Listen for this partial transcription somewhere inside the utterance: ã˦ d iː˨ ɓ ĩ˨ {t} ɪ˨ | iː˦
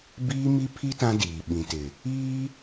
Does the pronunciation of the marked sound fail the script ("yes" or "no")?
no